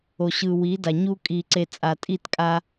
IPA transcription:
o˨ ɕ ɯ˨ w i˨˦ d a˨ ɲ u˦ kʼ i˨ ǀ e˨ t͡sʼ a˨ tʼ i˦˨ t kʼ a˦

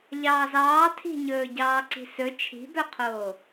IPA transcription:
ʎ ɑː z ɑː tʰ i̤ ɲ ɵː ɟ ɑː ǀ i̤ s ɵ t͡ʃʰ i̤ b œ qʰ oː

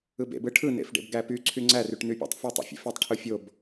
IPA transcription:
ɯ b ḛ b ɯ ʈʰ ɯ n ḛ f ɖ ḛ b ɡ æ p y ǀʰ y ŋ͡ǀ æ r y ʈ n y pʲ æ̰ tˤ f o tˤ ḛ fʲ ḛ f e tˤ ʈʰ ɯ fʲ o b

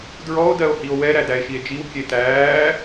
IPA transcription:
d ɹ ɔ o̯ d ɜ o̯ h i o̯ w ɛ ɾ æ d æ e̯ ʃ i e̯ d͡ʒ i w kʲ e t æː

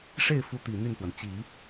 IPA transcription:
ʂ e˥˩ ɪ̯ f u˧˥ t̪ i˨˩ n̪ y˥˩ n x w ə˩ n t͡ɕ i˨˩˦

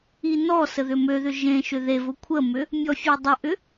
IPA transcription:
i n ɔ s ə ð ʏ m ø ð ʏ ʒ ẽ ʃ ʏ ð e v ʊ kʷʰ ə m ʏ | mʲ ɔ fʲ e dˤ ʏ ʔ ʏ

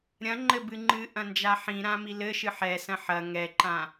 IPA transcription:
ɾʲ ɐ̃ ŋ͡ǃ ɘ b ɨ ŋ͡ǃ ɨ ʔ ɐ̃ n d͡ʒ a ħ ĩ ɾ ã m i l ɘ ʃ ɨ ħ ɛ s ɐ̃ ħ ɐ ŋ ɛ ǃ ã

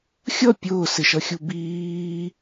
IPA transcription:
xʲ ʌ pʲ ʊː s ɪ ʃ ʌ xʲ u b iː

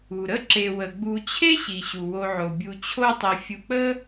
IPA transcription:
u˩ ɾ ə˥ ǁ e˨ w ə˩ ɡ͡b u˨ t͡ɕʰ e˥ ɕ i˩ ɕ u˩ w o˨ ʕ o˩ bʲ u˨ t͡ɕʰ o˦ tˤ i˨ fʲ u˨ k͡p ə˥

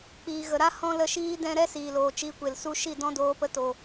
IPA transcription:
k͡p iː˨ ɣ ə˨ ɾ a˦ h ɔ̃˦ l ə˧ ʃ iː˦ d ɛ̃˧ ɾ ɛ˦ s iː˨ l oː˨ t͡ʃ i˨˦ kʷ e˨ l s u˧ ʃ i˦˨ d ɔ̃˦ d oː˨˦ p ə˧ t o˨

